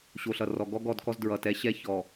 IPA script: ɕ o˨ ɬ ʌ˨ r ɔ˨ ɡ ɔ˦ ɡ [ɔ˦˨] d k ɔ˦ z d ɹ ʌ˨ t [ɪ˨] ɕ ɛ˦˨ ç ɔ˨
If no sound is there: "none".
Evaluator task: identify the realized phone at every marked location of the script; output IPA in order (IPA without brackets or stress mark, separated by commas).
ɔ˦˨, ɛ˨